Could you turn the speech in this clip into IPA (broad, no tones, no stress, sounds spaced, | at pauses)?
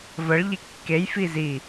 v ə ɭ ʎ i kː e j f i z i